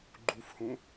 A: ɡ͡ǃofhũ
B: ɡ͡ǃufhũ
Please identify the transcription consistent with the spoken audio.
B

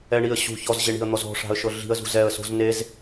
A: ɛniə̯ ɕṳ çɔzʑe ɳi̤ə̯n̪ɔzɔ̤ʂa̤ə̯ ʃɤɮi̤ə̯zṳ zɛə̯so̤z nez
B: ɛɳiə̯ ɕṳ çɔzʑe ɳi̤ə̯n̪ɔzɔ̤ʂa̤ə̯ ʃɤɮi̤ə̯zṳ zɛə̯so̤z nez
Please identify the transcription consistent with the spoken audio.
B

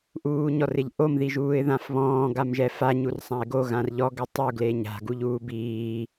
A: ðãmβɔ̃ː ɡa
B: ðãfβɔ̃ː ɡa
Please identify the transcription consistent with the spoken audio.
B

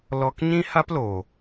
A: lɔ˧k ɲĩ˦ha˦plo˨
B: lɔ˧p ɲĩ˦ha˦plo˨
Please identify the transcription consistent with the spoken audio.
A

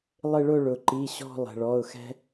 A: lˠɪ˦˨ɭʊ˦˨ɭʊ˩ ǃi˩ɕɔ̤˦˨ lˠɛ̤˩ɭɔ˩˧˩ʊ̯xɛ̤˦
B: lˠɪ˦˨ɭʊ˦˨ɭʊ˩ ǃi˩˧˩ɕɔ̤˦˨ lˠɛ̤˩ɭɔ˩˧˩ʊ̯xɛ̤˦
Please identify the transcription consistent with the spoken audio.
B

